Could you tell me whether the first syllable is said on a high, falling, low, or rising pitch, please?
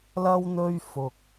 high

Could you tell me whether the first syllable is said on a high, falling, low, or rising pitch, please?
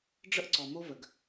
high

